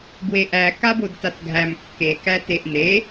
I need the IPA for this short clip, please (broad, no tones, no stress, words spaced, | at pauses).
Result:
bweʔæ kabodtatɡʱæm kːe kæteʔne